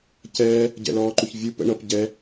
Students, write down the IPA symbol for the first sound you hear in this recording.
c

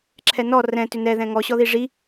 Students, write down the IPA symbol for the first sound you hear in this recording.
ǁʰ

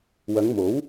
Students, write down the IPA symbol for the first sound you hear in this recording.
w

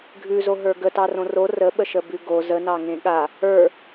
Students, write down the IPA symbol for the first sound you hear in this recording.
ɡʱ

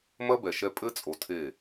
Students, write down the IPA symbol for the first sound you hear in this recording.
m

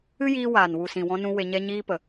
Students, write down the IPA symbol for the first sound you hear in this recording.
ɨ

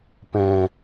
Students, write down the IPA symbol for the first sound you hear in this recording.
p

